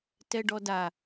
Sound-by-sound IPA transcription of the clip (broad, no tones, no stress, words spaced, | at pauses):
tɛɖɔda